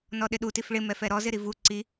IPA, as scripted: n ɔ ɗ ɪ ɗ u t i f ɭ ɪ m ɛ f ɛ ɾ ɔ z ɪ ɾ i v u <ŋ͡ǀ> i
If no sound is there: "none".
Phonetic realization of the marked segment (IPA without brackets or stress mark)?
ǀ